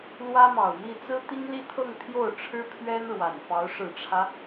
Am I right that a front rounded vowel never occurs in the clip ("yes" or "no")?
yes